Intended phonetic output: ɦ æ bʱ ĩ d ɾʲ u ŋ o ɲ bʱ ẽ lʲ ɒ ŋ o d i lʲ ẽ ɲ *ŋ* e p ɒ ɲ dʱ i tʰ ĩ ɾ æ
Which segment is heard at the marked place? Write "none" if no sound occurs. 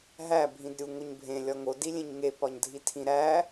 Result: ŋ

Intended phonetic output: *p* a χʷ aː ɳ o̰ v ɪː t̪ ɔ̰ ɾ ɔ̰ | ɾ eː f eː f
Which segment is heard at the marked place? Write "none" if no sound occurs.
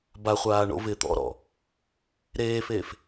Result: b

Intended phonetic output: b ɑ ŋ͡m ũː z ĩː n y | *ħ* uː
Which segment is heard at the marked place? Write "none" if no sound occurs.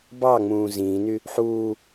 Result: ħ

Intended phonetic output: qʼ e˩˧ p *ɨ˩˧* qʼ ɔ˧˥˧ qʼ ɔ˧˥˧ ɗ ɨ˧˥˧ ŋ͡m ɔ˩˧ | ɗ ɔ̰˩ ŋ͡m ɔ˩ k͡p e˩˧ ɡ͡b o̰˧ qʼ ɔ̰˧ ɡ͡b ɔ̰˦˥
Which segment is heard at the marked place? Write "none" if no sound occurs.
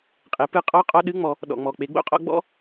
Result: ɨ˧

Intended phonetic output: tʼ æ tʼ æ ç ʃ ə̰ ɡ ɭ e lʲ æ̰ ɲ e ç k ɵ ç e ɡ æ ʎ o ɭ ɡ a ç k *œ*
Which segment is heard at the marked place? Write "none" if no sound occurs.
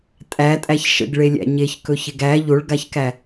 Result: æ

